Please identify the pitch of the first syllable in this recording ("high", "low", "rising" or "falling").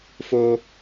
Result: high